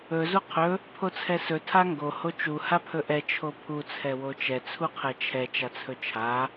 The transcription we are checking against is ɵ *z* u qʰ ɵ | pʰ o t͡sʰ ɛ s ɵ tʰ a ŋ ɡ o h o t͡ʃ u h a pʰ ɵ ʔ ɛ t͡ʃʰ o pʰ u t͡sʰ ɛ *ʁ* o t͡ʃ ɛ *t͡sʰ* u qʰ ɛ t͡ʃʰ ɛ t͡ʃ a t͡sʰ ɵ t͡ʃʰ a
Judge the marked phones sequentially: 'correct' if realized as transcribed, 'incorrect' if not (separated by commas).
correct, incorrect, correct